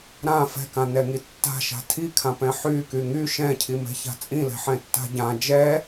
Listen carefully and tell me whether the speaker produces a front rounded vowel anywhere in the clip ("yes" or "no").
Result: yes